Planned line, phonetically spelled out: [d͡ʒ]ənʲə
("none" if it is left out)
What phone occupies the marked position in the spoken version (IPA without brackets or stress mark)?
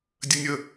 dʲ